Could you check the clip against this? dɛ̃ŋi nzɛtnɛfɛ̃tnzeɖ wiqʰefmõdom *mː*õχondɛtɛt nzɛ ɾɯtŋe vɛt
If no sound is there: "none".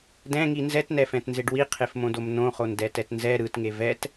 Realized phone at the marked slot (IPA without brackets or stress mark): n